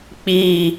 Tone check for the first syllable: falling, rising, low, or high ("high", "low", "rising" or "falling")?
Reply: high